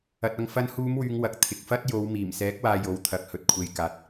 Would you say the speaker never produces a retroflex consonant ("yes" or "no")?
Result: yes